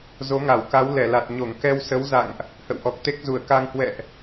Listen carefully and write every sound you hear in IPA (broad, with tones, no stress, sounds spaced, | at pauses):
z o˨˦ ŋ a˧˩ w k a˨˦ w l ɛ˧˩ l a˨˩ t̚ ɲ o˧˩ ŋ k ɛ˧ w s ə˨˦ w z a̰˧˨ ŋ ʔ | h ə̰˧˨ w ʔ ɔ˨˩ k̚ t̪ e˦˥ k̚ z u˧˩ ə̯ k a˧ ŋ h w ɛ̰˧˨ ʔ